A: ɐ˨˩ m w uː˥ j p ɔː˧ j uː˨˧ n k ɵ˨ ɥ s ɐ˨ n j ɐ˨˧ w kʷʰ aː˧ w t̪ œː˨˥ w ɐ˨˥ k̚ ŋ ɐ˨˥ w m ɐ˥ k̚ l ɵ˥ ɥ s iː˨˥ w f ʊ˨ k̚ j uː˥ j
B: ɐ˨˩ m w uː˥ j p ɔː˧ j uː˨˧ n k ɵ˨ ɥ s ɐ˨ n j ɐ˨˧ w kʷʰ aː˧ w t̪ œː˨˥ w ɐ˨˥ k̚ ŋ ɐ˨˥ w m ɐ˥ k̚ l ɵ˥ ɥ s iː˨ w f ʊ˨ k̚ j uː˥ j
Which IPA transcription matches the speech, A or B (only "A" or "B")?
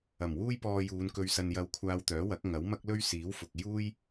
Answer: A